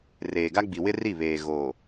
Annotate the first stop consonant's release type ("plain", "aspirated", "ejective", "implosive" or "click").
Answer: plain